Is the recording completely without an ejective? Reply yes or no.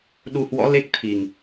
yes